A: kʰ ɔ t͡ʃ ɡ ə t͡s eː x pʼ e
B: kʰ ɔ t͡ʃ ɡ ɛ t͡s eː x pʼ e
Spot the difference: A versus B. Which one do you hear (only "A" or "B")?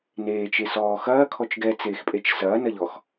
B